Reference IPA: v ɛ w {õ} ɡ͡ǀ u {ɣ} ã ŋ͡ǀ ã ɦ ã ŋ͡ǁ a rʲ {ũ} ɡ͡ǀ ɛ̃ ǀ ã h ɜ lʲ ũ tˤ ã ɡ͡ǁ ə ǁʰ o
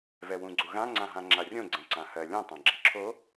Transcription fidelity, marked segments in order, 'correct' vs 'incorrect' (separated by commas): incorrect, correct, incorrect